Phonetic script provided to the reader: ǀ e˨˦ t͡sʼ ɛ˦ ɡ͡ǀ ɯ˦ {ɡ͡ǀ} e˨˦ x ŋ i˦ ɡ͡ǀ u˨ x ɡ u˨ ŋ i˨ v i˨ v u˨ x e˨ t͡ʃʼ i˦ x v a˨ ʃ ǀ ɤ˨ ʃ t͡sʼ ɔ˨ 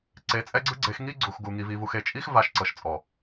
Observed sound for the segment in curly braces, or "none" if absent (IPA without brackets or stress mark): ɡ͡ǀ